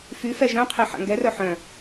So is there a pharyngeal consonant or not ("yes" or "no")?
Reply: yes